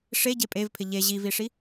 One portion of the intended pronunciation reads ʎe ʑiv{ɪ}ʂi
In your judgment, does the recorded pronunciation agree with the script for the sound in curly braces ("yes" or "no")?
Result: no